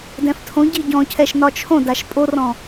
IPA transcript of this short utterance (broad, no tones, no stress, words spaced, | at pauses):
dɛ̃ftʰõɟi ɟɔ̃cʰɛʃ nɒt͡ʃʰõdaʃ pʼorɔ̃